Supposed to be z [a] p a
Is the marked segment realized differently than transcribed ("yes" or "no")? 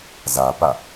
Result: no